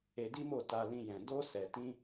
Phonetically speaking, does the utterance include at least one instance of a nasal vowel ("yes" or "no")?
yes